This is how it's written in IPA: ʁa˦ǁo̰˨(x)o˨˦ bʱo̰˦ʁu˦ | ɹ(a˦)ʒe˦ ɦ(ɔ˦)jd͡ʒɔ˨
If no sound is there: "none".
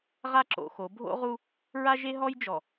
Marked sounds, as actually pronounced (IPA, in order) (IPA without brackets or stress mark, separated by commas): x, a˦, ɔ˦